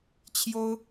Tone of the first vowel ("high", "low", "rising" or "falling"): high